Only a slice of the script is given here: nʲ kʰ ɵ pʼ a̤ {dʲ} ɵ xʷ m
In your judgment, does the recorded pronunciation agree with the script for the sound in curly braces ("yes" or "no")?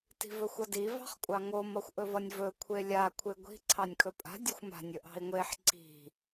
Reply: yes